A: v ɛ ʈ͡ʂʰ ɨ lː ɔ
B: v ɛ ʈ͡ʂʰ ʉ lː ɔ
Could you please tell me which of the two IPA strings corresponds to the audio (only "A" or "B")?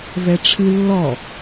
A